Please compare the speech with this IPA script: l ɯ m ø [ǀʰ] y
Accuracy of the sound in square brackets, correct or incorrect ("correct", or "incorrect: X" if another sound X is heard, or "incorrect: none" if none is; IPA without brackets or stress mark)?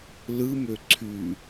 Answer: correct